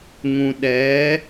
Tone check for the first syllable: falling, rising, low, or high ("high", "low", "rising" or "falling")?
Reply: low